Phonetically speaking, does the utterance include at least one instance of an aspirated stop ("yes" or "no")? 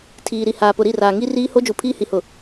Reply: yes